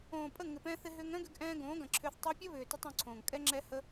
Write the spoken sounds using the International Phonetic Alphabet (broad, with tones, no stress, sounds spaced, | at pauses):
õː˨ pʼ ə˦˨ ŋ ɪ˨ p ɛ̃˧ θ ɪ˧ ɦ ʏː˧ ŋ œ̃˦ ɡ ʏ˧ ɡ ʔ ɛ̃ː˧ ɡ õː˨˦ ɡ ɐ̃˨ ǁʰ ʏː˧ θ tˤ ɛ˧ pʲ ɐ˦ β ʏː˨ t ə˧ tˤ õ˧ ǀʰ õː˨ ŋ kʼ ɛ˦ ŋ͡ǁ ɛ˦ h ə˦